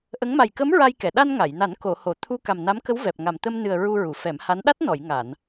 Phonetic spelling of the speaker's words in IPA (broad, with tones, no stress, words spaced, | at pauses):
ʔə˧˥ŋ ma˨˩jkə˧˥m ɹa˧jkɛ˨˩˨ ɗa˧n ŋa˨˩˨jna˨˩˦n ko˨˩˨ ho˨˩˨ t̪ʰu˧ ka˨˩mna˧˥mkə˧˥w vɛ˨˩p̚ŋa˨˩m t̪ə˧m nɨ˨˩ə̯ ɹu˧ɹu˨˩˨fɛ˨˩˦mha˧˥n ɗa˦˥t̚nɔ˨˩˨jŋa˨˩˨n